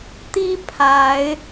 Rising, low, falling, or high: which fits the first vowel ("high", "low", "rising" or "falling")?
high